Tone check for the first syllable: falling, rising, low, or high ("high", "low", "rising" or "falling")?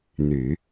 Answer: low